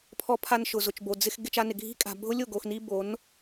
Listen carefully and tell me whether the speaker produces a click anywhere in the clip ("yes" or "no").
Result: no